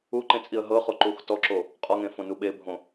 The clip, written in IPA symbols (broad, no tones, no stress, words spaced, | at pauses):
uǃẽt͡sʼiə̯ ɦɤχoǃux tɔǁo | qʼɔŋẽfõnu ɓebʱõ